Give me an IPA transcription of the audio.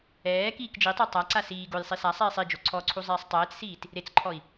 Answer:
ɛː k iː k d͡ʒ i tˤ ɛ tˤ a ǀ a s iː ɡ o j sˤ i s a sˤ iː sˤ i d͡ʒ o ǀʰ ɔ ǀʰ u zˤ iː sˤ tˤ ɛː t͡s s iː t | ɾ e t͡s ǃʰ ɔ i̯

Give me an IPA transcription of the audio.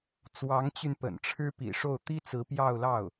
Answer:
t͡s w ɑ˧˥ ŋ t͡ɕ y˧ n p ə̰˨˩ n ʈ͡ʂʰ ɻ̩˥ p ḭ˨˩ ʂ o˥˩ ʊ̯ t̪ i˥ t͡s ɹ̩˧˥ p j ɑ˥˧ ʊ̯ l ɑ˥˩ ʊ̯

